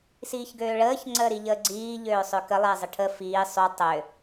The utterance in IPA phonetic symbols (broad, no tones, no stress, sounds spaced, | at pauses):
s iː ç ɡ øː ɭ əː ç ŋ͡ǀ əː ɾ i ʎ əː ɡ͡ǀ iː ʎ øː sˤ ø k ə lˠ e zˤ ə ʈʰ ə f iː sˤ u tˤ ø